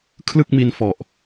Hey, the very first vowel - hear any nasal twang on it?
no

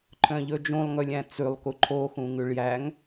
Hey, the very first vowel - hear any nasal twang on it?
yes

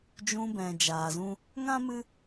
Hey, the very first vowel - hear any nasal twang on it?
yes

